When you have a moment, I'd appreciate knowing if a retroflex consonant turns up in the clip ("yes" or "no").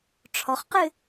yes